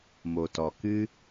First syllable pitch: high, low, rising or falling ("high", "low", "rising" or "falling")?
low